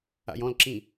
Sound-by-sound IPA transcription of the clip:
a̰jɔ̃lǁĩ

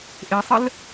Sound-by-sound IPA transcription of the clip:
ʔesˤəl

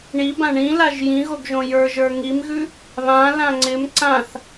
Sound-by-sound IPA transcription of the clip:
ɳibã ɳĩlaʒ jĩɣoɡʒõ jə˞ʒə˞ ŋimɣʉ | βãlã ŋ͡ǀɪm ǀãθ

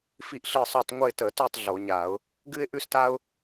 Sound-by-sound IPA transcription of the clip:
fi˥˨ʔɬɨ˥˨sˤʉ˥˨tˤ ŋʷə˥˨ɪ̯tə˧˩˧ tʉ˥˨tˤ ɮo˧˩˧ɲa˧˩˧ʊ̯ | ɡɨ˥ɪ̯ʔʉ˥sta˥ʊ̯

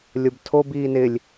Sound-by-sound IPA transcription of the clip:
lʲobtʰo biːnɪlʲ

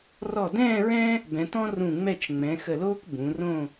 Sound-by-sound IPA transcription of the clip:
rɔ˧˩dɛ̃ː˥˧ɹɛ̃˥ | bɛ̃˩˧tɔ̃˥rũ˧˩ ŋ͡mɛ˥˧t͡ʃ ŋ͡mɛ̃˩˧ xə˧˩loː˥k bũ˩˧rõ˥˧

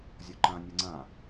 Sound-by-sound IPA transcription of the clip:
zʲɔǃãnʲœ ŋ͡ǀã

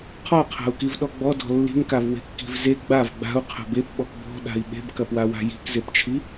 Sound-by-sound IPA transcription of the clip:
qʰɔqʰa̤u̯kivɗɔ ɡ͡bɔdɔ̤ lːi̤ŋkavwe̤kːi̤v ze ɡ͡bav ɡ͡ba̤u̯qʰa̤ bepɓɔk bɔ̤ɗa̤i̯ ɓe̤bkɐpwawa̤ ji̤kzept͡ʃʰi

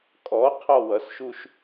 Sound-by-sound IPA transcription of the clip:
kʼɔqʰɔ wʌsʃuʃ

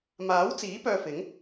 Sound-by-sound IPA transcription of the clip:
maː˨˥wt͡siː˨˥ pœː˧fɪ˨˥ŋ

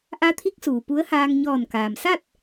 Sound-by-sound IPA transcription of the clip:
ʔa˧t̪ʰi˧˥k̚suː˩ pu˧˥ə̯haː˧ŋɲɔː˧˩n kaː˩msa˥˨t̚

